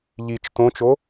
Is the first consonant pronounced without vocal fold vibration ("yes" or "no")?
no